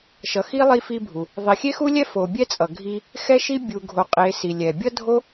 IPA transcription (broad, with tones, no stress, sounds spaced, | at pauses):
ʃ ʌ˨ x i˥ lˠ i˥ f i˥ bʱ u˨ | ðˤ i˨ xʲ e˥ x u˥ lʲ ɛ˥ f o˨ bʲ ɛ˥ t͡sʼ ʌ˨ ɡʱ i˥ | x ɛ˥ ʃ i˥ bʲ u˨ ɡʱ o˨ qʼ e˨ s i˨ lʲ ɛ˨ bʲ ʌ˥ dʱ o˥